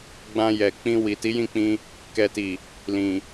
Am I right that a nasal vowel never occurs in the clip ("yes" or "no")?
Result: no